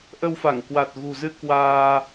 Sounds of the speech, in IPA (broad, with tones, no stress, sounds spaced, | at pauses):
ʔ ə˧ w f a˧˩ ŋ k w a˨˩ t̚ ɣ ṳ˨˩ z ɨ˧ k w aː˧